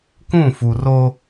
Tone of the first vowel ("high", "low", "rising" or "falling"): falling